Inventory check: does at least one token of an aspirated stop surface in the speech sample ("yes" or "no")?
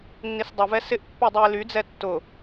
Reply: no